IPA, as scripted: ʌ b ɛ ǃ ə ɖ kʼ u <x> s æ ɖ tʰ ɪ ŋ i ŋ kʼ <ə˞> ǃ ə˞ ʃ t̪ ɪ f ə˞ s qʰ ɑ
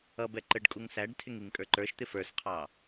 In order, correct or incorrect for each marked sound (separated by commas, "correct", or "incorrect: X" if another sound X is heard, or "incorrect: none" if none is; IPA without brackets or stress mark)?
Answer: incorrect: ŋ, correct